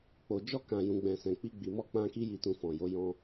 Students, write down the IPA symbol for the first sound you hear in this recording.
k͡p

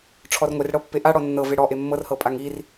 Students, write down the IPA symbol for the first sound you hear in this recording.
ʈ͡ʂʰ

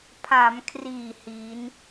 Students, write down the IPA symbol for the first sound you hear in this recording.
pʰ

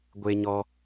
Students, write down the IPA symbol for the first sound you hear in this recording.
ɡʷ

